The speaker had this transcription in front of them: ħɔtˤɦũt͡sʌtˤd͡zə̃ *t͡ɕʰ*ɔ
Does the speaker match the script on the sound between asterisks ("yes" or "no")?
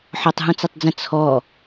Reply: no